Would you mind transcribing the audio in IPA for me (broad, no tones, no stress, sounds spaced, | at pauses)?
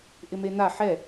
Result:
ʔ ɪ m e n̪ a ħ ɛ